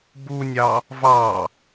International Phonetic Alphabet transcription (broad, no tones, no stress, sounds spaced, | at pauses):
b u nʲ ɑ | v ɑ